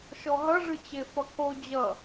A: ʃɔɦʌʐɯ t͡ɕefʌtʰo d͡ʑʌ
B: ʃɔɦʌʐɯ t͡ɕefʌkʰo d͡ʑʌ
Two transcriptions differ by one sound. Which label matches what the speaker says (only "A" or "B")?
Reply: B